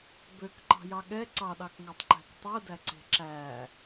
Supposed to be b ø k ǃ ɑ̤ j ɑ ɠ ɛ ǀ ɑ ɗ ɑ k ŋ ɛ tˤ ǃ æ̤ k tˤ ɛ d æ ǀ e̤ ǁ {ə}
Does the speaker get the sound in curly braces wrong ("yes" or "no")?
yes